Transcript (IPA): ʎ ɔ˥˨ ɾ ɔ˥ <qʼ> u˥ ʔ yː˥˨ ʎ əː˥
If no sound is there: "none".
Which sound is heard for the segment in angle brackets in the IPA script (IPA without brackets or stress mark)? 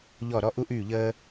ʔ